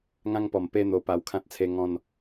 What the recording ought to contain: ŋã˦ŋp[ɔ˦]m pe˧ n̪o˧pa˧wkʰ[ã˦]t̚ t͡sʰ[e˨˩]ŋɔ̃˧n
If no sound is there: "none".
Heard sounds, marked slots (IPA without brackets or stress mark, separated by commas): ɔ˨˩, ã˦, e˧